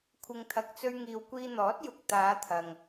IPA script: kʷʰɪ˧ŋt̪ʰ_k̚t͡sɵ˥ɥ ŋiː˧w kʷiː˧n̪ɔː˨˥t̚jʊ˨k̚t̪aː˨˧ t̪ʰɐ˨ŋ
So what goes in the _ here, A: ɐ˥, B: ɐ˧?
B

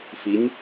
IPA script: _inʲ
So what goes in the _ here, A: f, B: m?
A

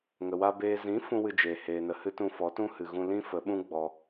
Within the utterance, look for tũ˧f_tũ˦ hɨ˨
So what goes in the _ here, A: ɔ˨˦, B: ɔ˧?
A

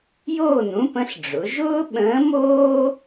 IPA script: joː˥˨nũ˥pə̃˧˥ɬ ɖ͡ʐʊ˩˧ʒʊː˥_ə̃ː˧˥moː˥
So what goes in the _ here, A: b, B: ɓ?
B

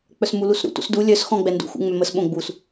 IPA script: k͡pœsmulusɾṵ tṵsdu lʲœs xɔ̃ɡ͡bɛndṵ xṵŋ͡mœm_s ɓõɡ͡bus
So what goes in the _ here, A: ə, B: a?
A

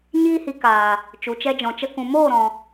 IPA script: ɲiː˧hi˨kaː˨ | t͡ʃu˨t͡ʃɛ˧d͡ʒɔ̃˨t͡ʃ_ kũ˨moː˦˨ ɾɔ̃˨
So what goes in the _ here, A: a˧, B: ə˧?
B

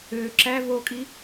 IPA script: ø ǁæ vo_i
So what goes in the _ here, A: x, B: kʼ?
B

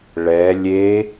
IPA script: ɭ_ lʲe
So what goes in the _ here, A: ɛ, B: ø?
A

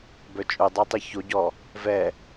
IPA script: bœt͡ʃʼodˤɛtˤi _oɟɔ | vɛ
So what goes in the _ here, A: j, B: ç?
B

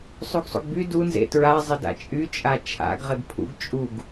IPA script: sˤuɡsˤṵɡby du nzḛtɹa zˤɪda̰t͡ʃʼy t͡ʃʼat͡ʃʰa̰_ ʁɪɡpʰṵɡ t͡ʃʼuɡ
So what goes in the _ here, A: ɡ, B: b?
A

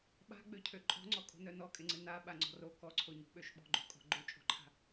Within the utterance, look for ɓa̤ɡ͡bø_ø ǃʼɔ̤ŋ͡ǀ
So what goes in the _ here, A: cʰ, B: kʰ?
A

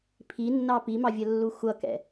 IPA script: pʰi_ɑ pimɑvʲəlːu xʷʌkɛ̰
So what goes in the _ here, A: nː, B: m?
A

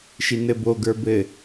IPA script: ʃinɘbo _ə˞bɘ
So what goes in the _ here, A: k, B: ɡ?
B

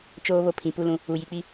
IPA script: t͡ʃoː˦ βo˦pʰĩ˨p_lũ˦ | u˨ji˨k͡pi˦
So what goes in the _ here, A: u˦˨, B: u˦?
B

